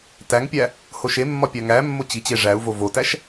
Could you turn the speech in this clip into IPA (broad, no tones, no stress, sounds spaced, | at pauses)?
t æ ŋ pʲ æ | h o ʃ e mː ɒ pʲ æ ŋ æ mː o t͡ɕ i t͡ɕ e ʐ æ u̯ v o v o t æ ʃ